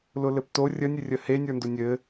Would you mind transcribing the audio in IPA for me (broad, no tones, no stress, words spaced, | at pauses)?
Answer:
lʊlɘpto rʲənʲɘrʲə henʲə˞ndʊ nʲɘ